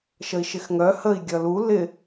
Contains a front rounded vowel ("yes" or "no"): yes